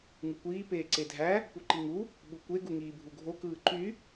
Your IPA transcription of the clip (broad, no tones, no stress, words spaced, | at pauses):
ŋɯkʷiː peːǀedʱæ | puǃiŋu | ɓukʷe ɡuŋiːbʱuɡʱo kɯːǃy